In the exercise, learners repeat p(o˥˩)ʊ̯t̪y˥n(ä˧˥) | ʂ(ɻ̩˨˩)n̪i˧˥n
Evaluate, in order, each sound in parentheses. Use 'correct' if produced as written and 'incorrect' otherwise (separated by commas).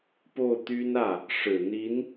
correct, incorrect, correct